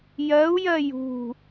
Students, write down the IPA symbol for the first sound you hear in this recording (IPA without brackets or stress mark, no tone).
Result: j